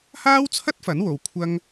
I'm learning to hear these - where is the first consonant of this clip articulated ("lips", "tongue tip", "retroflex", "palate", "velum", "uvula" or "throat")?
throat